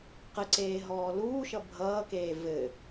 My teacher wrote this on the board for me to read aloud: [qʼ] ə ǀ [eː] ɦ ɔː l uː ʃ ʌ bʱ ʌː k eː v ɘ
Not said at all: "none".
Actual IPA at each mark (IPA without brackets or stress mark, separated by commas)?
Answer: q, eː